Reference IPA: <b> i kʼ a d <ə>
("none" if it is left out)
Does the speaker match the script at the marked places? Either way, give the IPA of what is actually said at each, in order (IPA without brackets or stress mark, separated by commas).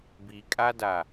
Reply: b, a